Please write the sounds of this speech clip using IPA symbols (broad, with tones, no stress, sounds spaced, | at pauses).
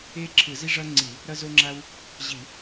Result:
e˥ ǁʰ ɯ˧˩˧ z i˥ ʐ ʌ˥ ŋ͡ǀ i˧˩˧ | ɾ ʌ˥ z o˥ ŋ͡ǁ a˥ w | ʑ i˧˩˧